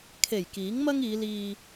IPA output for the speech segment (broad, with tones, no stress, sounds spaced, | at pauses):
kʰ e˨˩ j k iː˨˥ ŋ m ɐ˥ ŋ iː˨˧ l iː˧